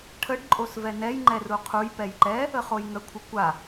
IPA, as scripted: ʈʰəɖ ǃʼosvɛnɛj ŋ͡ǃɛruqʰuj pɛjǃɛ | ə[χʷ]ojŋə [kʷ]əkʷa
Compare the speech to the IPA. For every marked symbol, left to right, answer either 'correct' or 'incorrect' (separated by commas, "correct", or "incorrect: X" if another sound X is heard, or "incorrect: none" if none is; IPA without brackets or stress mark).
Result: incorrect: χ, incorrect: kʷʰ